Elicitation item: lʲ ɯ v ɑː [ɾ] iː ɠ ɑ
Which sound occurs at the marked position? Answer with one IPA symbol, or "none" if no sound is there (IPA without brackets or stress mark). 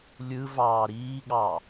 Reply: ɾ